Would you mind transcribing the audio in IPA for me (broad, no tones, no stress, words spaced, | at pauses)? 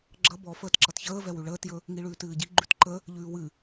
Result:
ɡ͡ǁʌ bɔ fəːtǁʌtçəːvɛ wʉɭəːtjɵ | ŋiɭʉːtɨːɟi ɡ͡ǃʉtǃə | ʎʉːwɨ